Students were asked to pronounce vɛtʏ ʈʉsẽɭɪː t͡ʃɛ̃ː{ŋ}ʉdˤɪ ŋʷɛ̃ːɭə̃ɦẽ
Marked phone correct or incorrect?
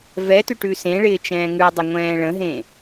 correct